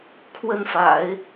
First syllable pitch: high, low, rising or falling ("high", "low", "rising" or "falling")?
falling